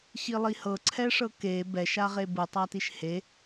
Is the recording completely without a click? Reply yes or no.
no